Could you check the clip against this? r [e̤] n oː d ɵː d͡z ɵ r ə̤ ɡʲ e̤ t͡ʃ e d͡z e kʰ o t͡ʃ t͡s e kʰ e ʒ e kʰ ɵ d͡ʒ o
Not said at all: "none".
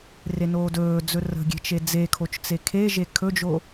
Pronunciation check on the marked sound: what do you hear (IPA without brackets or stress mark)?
e